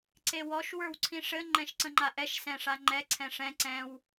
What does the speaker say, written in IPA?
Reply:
ǀʰewɔʃ wə˞wǀʰĩʂɘ ŋ͡ǃɛ̃ʃǀə̃ŋ͡ǃaʔɛʃ sɛ̃ʂaŋ͡ǃɛ ǀʰɛ̃ʂɛ̃ ǀɛ̃w

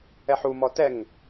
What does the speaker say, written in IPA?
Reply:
ɛħumɔ tɛŋ

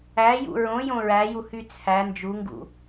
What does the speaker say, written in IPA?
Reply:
æjṵ ɹõjõ ɹæjuhy t͡sʰæ nd͡ʒuŋɡṵ

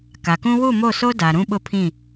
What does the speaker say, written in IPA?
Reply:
ka˨kũ˦ wu˦˨mo˦˨so˦ da˨ɾũ˦ɓʊ˦˨pʰĩ˦˨

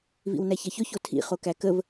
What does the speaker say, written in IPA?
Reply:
vḭwnæçɐçɵ çotʰḭ χokækəv

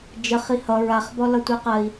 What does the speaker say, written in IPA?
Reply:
d͡ʒəχ ihʌ ɹaχbɔ lʌtʷeqɜi̯

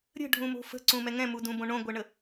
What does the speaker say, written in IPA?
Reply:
ɾʲə̤ɖʱũmo̤ fə̤ǀũmɛ ŋɛ̃mudũbõ ɳõɡʷɛɳə

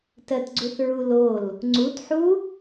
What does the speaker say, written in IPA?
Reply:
tɜtɡ͡ǀuθɹulol | ŋ͡ǀutħu

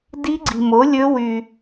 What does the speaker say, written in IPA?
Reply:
di˦˥ɡ͡ǀi̤˧mo˨˥lʲɵ˦˥ wy˧

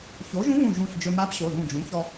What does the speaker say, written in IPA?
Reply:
ço˩˥ʒũ˧˥βũ˧˩ ʒũ˧˩ɬ d͡ʒɵ˧ ma˧˥pɕo˩˧˩ðũ˧˩d͡ʒũ˩˥ çɔ˧

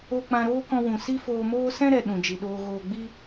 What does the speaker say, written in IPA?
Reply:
o˦ k͡pã˧ɾoː˦kɔ̃˧ wũ˨ si˦foː˧moː˦ sɛ̃˦ɾɛ˨ ɗũ˨d͡ʒi˨ɗoː˧ ɣoː˨ɡ͡bi˧

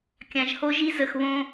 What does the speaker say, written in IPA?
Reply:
kʲã˨ʒho˦ʒi˦zə˨x βõ˦

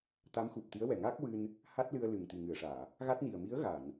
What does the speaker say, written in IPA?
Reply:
t̪a˧˥mxu˨˩p̚t̪i˧˥ə̯wɛ˨˩ ŋaː˦˥k̚wɨ˧n | ha˦˥t̚lɨ˧ə̯ lɨ˨˩ŋt̪i˨˩ŋɨ˨˩˨ə̯ʂaː˨˩˨ | ɣa˦˥t̚ni˨˩ə̯ mi˧˥ə̯ɣa˨˩˨n

